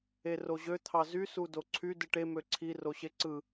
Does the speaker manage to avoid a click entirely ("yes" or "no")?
no